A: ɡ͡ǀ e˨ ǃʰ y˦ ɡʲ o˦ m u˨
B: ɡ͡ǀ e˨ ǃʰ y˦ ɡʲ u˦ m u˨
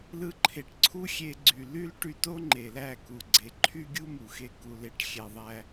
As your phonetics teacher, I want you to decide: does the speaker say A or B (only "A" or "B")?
B